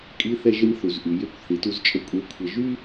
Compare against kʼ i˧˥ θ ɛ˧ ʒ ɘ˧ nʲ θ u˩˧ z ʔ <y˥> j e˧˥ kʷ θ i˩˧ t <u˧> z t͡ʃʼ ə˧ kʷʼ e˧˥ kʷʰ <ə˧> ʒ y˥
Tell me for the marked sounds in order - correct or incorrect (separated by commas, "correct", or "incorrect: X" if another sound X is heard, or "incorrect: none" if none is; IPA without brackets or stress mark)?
incorrect: y˩˧, correct, correct